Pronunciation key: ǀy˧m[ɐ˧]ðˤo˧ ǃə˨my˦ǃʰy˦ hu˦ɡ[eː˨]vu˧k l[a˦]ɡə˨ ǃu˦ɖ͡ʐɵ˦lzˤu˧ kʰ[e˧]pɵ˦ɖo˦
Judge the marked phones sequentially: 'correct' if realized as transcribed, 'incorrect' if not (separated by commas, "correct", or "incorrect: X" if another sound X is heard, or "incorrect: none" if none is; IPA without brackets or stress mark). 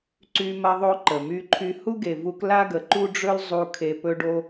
correct, incorrect: e˨, correct, correct